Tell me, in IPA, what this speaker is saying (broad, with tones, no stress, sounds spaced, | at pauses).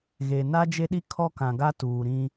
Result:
ɣ e˨ n a˦ d͡ʒ e˦ ɗ i˦ kʰ ɔ˦ k ã˨ ɡ a˦ t uː˨ ɾ ĩ˦